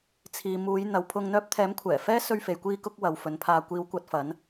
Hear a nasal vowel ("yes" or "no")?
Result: no